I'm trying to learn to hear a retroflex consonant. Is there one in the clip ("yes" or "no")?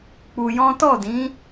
no